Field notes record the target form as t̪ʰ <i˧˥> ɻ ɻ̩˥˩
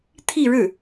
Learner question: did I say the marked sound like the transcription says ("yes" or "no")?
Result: no